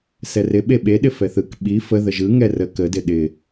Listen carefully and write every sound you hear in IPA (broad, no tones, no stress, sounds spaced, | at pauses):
s ɛ r ɪ ɓ e ɓ e ɗ ɪ f ɛ θ ɯ k ɓ i f ə ð ə ʒ ɯ ŋ ɛ r ə k ə d ɪ ɗ ɪ